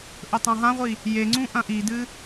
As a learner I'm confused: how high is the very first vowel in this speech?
mid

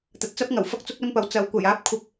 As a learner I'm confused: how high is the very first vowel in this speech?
low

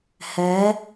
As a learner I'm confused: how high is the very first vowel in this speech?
mid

